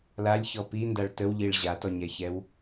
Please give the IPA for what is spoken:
l a lʲ ç ɔ p i n d a ɭ t ə w ʎ i ɭ ʑ a t ɔ ɲ ɛ ç ɛ w

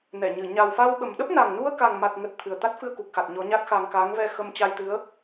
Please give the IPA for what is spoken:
n ɛ˧˩ ɲ ɨ˧˩ ɲ a˨˩ w f a˧ w ɓ ə˨˩ m ɗ ə˦˥ p̚ n a˨˩ ŋ n u˧ ə̯ k a˨˩ ŋ m a˨˩ t̚ ŋ ə˨˩ t̚ t̪ʰ ɨ˨˩ ə̯ t̪ a˦˥ t̚ f ɨ˧ ə̯ k u˨˩ k̚ x a˨˩ t̚ ɲ ɔ˨˦ ɲ a˦˥ t̚ x a˧ ŋ k a˨˦ ŋ v ɛ˧ x ə˧ m t͡ɕ a˧ j t̪ ɨ˨˦ ə̯

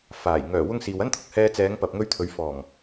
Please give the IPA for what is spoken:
f aː˨˩ j ŋ œː˨˩ w ʊ˧ ŋ s iː˨ w ɐ˥ n t̪ʰ ʊ˨ k̚ h ɛː˧ t͡s ɛː˨˧ ŋ p ɐ˨ p̚ ŋ ɵ˧ ɥ t̪ʰ ɵ˨˧ ɥ f ɔː˨˩ ŋ

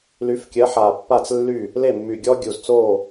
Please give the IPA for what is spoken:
l y˨˥ f kʲ ɜ˨˥ ħ a˨˩ pː a˥˩ t͡s lː y˥˩ | l e˥˩ mː y˨˩ ɡʲ ɔ˥ ɡʲ u˨˩ z t͡s o˥˩

